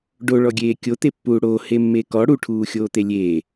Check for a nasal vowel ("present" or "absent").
absent